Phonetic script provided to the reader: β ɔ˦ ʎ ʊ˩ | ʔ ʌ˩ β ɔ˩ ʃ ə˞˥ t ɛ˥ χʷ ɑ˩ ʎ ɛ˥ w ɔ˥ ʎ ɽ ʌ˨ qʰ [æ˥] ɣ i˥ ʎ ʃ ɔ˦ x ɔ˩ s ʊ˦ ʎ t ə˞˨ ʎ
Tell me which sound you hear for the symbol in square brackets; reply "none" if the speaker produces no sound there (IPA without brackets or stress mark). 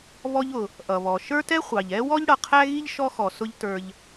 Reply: æ˥